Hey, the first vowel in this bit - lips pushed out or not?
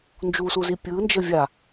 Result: yes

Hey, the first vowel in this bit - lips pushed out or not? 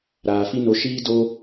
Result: no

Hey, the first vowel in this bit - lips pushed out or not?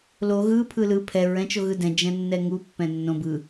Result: yes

